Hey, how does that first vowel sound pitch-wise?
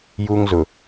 high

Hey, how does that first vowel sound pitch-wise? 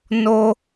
high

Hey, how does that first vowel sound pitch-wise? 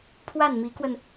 falling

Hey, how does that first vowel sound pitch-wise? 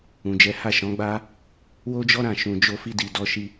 low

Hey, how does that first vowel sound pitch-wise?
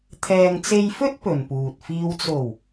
low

